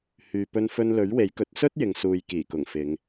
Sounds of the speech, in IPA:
h yː˨ p ɵ˧ n f ɵ˧ n l ɵ˨˥ ɥ w e˨˥ j k ɵ˨˥ t̚ s ɵ˥ t̚ j ɪ˨ ŋ s uː˨ j k iː˨˩ k ʊ˨˩ ŋ f ɪ˨˧ ŋ

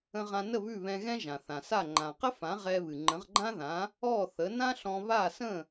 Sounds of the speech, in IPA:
ə̃˧ ʁ ã˧ n ə˥˩ β ʉ˥˩ β ɛ̃˧ ɣ ɛ̃˥ ʒ ã˩ θ ã˩ s a˥˩ ŋ͡ǃ ã˩ q ə˥ f ã˩˥ ʁ ɛ˧ β ɨ˩ ŋ͡ǃ ə̃˩˥ ʁ ɡ͡ǃ ã˥ ð ã˩˥ | ɔ˥˩ θ ə˩˥ n ã˥ ɬ ɔ̃˧ β a˥˩ s ə̃˥˩

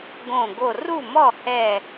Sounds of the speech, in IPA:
ɡ õ˧˩ ɡ o˧˩ r u˥˩ m ɔ˥˩ h ɛ˧˩

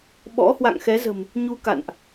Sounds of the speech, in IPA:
ɓ ɔ̰˧˥ h w a̰˧˨ ŋ x ɛ˨˦ z ə̤˨˩ m | ɲ u˧ k a̰˧˨ n ʔ

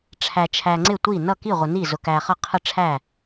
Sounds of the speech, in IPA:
ʈ͡ʂʰ æ˨ t͡ʃʰ æ˨ ŋ͡ǀ ɪ˥˩ tʷ i˥˩ n ʌ˥˩ k i˥˩ ʁʷ ə˨ n i˥˩ z ʊ˨ k æ˨ χ ʌ˥˩ qʰ ə˥˩ ʈ͡ʂʰ æ˥˩

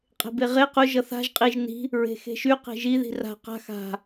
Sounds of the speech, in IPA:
qʼ e̤ b e ʁ e q ʊ ʒ ʌ θ a̤ ʒ qʼ i ʒ n i̤ | ɹ e̤ x e̤ ʃ y q e̤ ʒ i ð i̤ r a̤ q a̤ x a̤

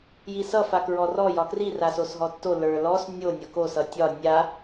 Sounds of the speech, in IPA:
j i s ʌ f a k ɹ ɔ r ɔ j ɒ k r i r a s o s ɦ ɔ tː o l ə˞ l ɔ s nʲ o nʲ ʌ k o s ʌ tʲ ɒ nʲ a

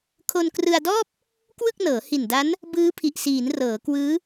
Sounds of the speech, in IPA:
kʰ o˧ n k r ɯ˧ a̯ d ɔː˥˩ p̚ | k w ɯ˥˩ k̚ n ɤː˩˦ h i˨˩ n d a˦˥ n | b ɯː˦˥ pʰ i˨˩ ʔ s iː˩˦ n r ɤː˩˦ k w ɯː˦˥

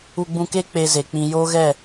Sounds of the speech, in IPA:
u˧ ɡ͡b ũ˧ k e˦ k͡p e˧ z e˨ k͡p ĩ˨ j oː˦ ɣ ɛ˦˨

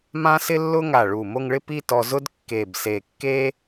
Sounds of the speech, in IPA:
m ã˥ s ɪ˥ lː ʊ˥ ŋ a˧˩ ɭ u˧˩ m o˥˧ ŋ ɭ ɪ˥ p i˥˧ t ɔ˧ z ʊ˥ d kː e˧˩ b s e˧˩ kː e˥

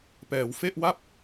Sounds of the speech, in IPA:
p ɛː˩˦ w f e˥˩ ʔ w a˥˩ p̚

